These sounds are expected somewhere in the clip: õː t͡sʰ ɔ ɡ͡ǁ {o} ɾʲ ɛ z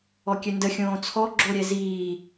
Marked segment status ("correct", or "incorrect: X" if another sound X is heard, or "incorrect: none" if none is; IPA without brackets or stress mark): correct